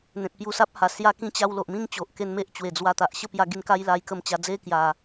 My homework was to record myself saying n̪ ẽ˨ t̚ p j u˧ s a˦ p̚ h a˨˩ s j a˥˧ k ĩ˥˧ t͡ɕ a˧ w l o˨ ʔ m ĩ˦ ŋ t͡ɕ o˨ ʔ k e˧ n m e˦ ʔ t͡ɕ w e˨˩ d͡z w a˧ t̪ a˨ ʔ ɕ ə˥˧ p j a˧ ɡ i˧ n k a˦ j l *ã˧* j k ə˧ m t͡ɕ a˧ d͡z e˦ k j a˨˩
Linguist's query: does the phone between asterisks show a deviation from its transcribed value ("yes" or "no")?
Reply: yes